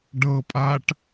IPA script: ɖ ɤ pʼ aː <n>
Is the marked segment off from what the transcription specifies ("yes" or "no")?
yes